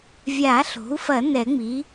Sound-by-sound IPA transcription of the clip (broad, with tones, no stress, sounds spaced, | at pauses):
vʲ a˨˩˦ ɬ o̤˩˥ u̯ f ɐ˨˩˦ n ɛ˨˩˦ ŋ͡m i˩˥